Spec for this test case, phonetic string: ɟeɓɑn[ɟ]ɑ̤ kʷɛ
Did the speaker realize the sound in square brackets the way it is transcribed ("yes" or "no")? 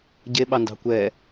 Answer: no